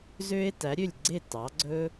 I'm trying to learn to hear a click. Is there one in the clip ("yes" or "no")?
yes